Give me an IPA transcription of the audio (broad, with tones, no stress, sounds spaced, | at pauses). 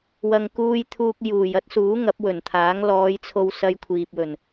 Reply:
w ɐ˨ ŋ k uː˧ j t̪ʰ uː˧ k̚ j uː˨˩ j ɐ˥ t̚ s uː˨˥ ŋ ɐ˨˥ p̚ w ɵ˨˩ n t̪ʰ aː˨˥ ŋ l ɔː˨˧ j t͡sʰ o˧ w s ɐ˧ j kʷʰ iː˨ p̚ w ɵ˨˩ n